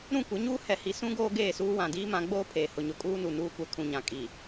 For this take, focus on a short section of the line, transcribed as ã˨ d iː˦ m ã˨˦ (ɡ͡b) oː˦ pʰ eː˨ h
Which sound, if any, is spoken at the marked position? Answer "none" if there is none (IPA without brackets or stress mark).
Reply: ɡ͡b